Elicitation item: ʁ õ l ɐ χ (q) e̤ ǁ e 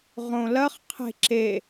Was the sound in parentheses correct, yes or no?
no